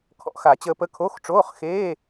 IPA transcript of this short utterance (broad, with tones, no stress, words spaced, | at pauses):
kʰɔ̰˨˩˦xa˨˩˦t͡ɕəː˧pə˧˥ kʰo˧˥˧xʈ͡ʂoː˧˥˧χ xeː˧˥˧